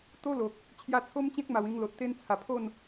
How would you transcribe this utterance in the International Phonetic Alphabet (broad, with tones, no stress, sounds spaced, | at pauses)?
t̪ o˦ l o˨ k̚ | t͡ɕʰ j a˧ t͡sʰ o˦ m t͡ɕ ẽ˦ k̚ m a˨˩ w ĩ˧ ŋ l o˨ t̚ t̪ e˦ n t͡sʰ a˨˩ pʰ o˥˧ n